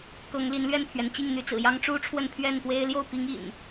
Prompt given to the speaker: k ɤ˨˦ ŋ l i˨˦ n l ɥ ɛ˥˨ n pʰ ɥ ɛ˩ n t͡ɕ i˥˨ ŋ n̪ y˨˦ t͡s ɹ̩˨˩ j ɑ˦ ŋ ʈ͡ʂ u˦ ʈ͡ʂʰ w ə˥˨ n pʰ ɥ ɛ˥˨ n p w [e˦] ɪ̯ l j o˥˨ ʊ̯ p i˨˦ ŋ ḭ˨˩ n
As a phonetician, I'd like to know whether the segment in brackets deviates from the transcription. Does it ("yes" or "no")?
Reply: no